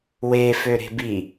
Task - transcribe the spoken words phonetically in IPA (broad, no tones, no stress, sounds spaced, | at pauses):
w e f ø ɾ e̤ b i